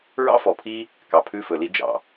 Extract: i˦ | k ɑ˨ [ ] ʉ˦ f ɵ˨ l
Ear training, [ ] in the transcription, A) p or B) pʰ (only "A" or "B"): B